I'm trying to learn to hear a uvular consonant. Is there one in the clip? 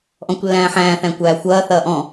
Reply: no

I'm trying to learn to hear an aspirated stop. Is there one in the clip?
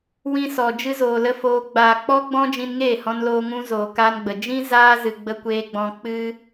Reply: no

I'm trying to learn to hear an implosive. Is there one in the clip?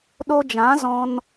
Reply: yes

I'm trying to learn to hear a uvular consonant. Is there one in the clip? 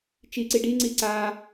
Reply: no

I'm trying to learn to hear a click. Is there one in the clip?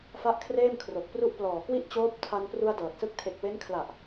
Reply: no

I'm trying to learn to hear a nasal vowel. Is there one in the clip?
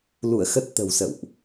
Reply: no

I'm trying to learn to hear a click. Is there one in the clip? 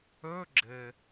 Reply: yes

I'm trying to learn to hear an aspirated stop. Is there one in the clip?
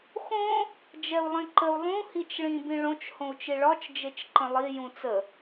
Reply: no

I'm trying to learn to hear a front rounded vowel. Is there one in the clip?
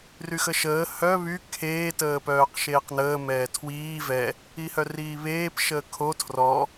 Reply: yes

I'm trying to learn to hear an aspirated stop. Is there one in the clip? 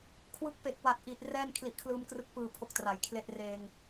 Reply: yes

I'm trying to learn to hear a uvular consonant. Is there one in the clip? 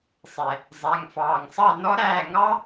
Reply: no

